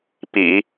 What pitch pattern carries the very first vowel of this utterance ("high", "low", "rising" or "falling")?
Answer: low